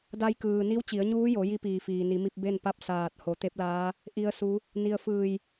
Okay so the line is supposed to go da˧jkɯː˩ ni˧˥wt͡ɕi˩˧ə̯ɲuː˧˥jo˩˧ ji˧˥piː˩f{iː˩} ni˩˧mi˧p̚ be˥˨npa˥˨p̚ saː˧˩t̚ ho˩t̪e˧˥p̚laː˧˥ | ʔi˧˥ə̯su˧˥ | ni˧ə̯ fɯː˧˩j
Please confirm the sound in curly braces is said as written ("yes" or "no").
yes